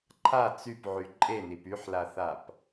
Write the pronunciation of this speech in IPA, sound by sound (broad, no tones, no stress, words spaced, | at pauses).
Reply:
ǃʰa t͡sypʕy ǃʼenip yħlaθap